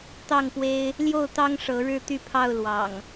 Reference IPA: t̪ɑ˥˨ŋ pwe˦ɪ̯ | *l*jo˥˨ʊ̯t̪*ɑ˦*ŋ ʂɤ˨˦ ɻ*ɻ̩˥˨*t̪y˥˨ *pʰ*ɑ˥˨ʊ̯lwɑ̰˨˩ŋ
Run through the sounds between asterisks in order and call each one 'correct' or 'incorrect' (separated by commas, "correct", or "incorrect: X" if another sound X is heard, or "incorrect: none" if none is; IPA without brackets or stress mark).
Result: correct, correct, incorrect: ɻ̩˦, correct